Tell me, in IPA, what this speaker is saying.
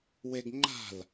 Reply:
weɡŋ͡ǃa̤l

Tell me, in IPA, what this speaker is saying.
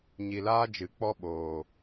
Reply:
ɲi˨laː˦d͡ʒɨ˨ k͡pɔ˦ɓoː˨

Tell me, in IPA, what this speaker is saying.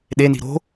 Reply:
ɗeni̤ ɾo̤

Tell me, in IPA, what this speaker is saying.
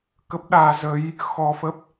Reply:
kə˦˥p̚ɗaː˨˦ zə˨˦j | xɔ˧fə˦˥p̚

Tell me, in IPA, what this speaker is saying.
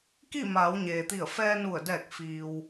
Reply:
ki˥˨maː˩˧wɲeː˩t̪i˧˩ə̯ fɛː˧nu˧˩ə̯dɛː˧˩k̚ fiː˩w

